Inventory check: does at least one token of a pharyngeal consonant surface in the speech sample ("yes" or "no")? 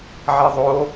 yes